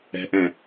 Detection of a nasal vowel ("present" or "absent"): present